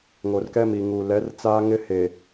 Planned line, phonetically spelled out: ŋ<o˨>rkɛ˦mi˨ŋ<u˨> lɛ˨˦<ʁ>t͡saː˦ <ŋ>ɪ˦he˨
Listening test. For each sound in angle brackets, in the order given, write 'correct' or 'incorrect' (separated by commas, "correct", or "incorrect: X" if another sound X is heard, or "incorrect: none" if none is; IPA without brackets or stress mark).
correct, correct, incorrect: r, correct